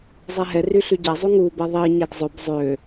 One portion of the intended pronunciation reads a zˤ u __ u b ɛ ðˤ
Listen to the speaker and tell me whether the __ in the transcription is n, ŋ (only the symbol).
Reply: ŋ